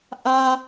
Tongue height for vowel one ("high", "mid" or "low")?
low